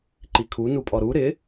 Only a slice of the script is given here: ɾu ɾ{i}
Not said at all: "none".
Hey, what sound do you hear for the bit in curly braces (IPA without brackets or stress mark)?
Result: ɪ